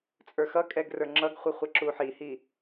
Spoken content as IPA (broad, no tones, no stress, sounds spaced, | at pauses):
t͡sʼ ə˞ x ʌ kʼ ɛ ɡ r ə˞ ŋ͡ǁ ʌ ɡ χʷ ə χʷ ɛ ǁ u ħ i h i